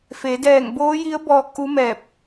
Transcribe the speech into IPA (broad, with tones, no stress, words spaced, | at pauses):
fe˩˧dɛː˧˩ŋboː˧˥ji˧˥ə̯ bɔː˧˥k̚ʔu˧˥mɛː˧˩p̚